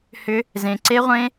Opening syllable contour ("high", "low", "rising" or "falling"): high